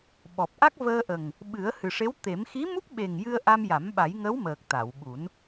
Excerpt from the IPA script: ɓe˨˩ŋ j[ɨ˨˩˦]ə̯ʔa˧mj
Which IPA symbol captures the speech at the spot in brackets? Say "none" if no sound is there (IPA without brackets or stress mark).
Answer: ɨ˧